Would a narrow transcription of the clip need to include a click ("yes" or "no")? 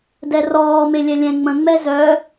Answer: no